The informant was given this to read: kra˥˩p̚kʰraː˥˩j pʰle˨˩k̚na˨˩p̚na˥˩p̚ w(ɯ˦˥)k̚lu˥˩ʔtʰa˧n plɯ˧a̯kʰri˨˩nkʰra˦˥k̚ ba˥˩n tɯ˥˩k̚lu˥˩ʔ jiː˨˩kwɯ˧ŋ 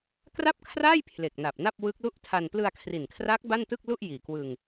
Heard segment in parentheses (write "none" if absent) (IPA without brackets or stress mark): ɯ˦˥